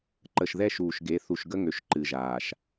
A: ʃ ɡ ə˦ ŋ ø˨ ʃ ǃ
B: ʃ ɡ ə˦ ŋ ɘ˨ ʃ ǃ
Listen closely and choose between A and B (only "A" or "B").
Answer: A